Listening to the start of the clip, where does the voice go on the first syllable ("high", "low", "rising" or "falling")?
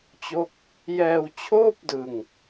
falling